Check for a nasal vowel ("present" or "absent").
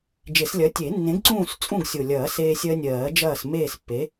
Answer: present